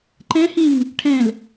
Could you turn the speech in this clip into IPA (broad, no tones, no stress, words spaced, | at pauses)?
ǃɛ̃hĩŋ | ʈʰɛ̃l